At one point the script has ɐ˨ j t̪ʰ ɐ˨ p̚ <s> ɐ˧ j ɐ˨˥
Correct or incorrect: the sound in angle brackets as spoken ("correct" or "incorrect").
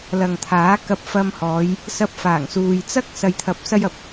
correct